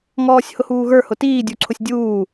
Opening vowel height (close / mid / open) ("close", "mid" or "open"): mid